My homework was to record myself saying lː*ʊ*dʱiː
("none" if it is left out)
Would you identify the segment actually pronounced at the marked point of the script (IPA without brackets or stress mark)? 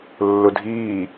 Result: ʊ